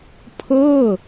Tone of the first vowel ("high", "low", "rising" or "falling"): falling